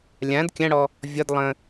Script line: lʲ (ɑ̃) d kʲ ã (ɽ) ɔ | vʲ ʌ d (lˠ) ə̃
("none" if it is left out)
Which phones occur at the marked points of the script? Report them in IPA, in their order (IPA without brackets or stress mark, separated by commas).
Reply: ã, ɽ, lˠ